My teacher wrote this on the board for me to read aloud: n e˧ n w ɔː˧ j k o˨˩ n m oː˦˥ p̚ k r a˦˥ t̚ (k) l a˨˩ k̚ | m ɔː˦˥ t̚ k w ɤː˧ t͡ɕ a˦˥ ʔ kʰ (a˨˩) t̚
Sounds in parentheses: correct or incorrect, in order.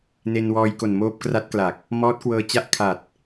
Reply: correct, correct

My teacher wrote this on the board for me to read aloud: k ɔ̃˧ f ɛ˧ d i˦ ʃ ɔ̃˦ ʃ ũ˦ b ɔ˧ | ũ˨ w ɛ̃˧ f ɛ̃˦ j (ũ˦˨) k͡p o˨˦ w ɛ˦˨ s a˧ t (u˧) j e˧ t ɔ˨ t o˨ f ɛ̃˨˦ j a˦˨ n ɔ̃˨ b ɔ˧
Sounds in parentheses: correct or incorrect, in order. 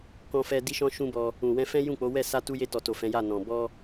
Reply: correct, correct

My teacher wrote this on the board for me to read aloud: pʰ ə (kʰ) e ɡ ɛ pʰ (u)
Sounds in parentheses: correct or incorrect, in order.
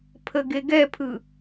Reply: incorrect, incorrect

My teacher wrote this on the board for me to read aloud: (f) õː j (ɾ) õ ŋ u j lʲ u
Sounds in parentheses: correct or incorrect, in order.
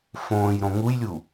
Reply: correct, correct

